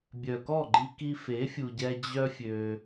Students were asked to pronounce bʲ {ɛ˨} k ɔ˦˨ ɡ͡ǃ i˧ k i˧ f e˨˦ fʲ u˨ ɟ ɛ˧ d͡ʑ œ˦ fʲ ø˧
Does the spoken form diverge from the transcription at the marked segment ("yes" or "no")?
yes